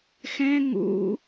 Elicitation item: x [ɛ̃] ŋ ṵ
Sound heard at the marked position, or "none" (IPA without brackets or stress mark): ɛ̃